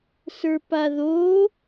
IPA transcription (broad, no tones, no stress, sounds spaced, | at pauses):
s ə˞ p a ð o